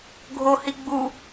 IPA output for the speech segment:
ɡʱ o h i ɡ͡b u

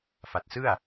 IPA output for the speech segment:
f a˨˩ t̚ s ɯ˥˩ a̯

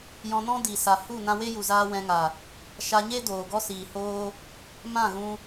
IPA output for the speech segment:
j ɔ̃˧ n ɔ̃˦ d i˨ s a˨ h u˦˨ n ã˧ w e˦ j u˨ z aː˧ w ɛ̃˧ ŋ a˨ | ʃ a˧ ɲ e˦ d oː˨ ɡ ɔ˦ s iː˨ h oː˦ | m ã˦˨ ɣ ũ˧

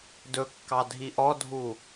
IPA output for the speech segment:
d ɵ kː ɑ dʱ i ʔ ɔ dʱ u

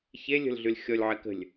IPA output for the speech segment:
ç e lʲ ə̤ l ɮ y l xʲ ɔ lʲ ʕ ɛ k ə̤ lʲ

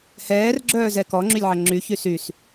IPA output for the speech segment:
h ɛː r ɡ͡ǁ œː z ɛ k ɔ ŋ͡ǁ y lʲ ʕ ɐ ŋ͡ǁ y ç y s y s

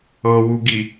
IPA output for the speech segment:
ɤ w u ɡ i

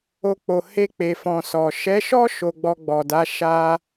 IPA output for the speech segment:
o˧ k͡p o˨ h e˧ k͡p e˨ f ɔ̃˨ s ɔ˨ ʃ ɛ˨˦ ʃ ɔ˦ ʃ o˧ ɡ͡b ɔ˧ ɡ͡b ɔ˨ d a˨˦ ʃ a˧

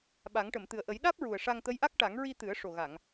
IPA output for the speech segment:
ɓ a˨˩˦ ŋ ʈ ə˨˩˨ m t̪ ɨ˨˩ ə̯ ʔ ə˨˩˦ j ɗ aː˦˥ p̚ ɹ u˨˩ ə̯ ʂ a˧ ŋ t̪ ə˧˥ j ʔ a˦˥ k̚ ʈ a˨˩˦ ŋ ɹ i˧ t̪ ɨ˨˩˦ ə̯ ʂ o˨˩ ɣ a˨˩˨ ŋ

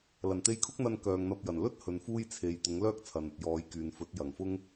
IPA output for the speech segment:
l ɐ˨˩ n t̪ e˧ j kʰ ʊ˥ k̚ n̪ ɐ˧ n k œː˨ ŋ n̪ ɐ˧ p̚ j ɐ˨˩ n l ɵ˥ t̚ h ɵ˨ n f uː˥ j t͡sʰ e˨ j t̪ ʊ˨˥ ŋ l œː˥ k̚ t͡sʰ ɐ˨ n ɐ˨ t̚ j ɔː˨˧ j k yː˨ n f ɵ˨˥ t̚ j ɐ˨˩ ŋ f ʊ˥ ŋ

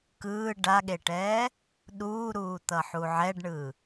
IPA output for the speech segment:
k ɯː ɖ a ɠ e ʈ ɛː | ɗ uː ɾ uː t̪ ʌ ħ u ʕ ɛ ɖ ɳ ɯ

